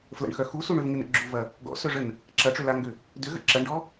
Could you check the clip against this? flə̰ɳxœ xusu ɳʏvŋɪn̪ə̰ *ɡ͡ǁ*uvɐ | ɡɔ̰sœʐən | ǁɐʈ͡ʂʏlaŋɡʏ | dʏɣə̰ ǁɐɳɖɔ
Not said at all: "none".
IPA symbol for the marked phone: ɡ͡ǁ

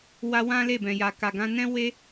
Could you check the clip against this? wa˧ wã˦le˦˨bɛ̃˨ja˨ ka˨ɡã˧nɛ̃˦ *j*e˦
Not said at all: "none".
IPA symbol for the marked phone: w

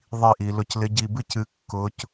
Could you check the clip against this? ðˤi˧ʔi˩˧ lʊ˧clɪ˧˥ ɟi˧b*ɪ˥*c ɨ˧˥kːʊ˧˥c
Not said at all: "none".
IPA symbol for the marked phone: ɨ˥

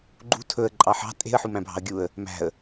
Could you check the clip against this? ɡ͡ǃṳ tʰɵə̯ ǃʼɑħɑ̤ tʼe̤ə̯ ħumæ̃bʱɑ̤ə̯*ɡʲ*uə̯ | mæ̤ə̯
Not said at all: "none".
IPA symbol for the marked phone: ɡʲ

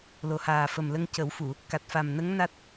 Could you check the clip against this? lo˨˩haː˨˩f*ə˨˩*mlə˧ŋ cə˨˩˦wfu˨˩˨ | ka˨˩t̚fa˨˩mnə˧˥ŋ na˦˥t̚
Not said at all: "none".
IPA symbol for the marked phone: ə˨˩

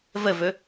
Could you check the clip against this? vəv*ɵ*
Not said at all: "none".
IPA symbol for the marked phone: ɵ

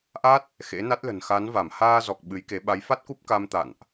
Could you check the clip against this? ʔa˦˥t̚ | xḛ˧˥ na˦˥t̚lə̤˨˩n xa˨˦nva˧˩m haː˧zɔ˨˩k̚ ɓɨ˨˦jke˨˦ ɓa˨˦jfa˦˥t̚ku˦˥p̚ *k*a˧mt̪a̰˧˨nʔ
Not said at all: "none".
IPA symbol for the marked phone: k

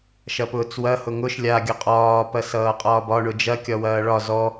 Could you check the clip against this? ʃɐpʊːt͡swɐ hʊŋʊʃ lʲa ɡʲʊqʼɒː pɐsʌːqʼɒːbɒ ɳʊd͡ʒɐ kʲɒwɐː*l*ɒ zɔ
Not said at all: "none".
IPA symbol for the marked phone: ɭ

